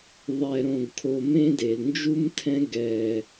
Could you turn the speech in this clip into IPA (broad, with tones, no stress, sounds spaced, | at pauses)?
ðˤ ɛ˨ ɾ õ˨ ɡ kʰ o˨ m ẽ˦ d e˩ l n d͡ʒ u˦ m tʰ ɛ̃˦ ɡ ɛ˨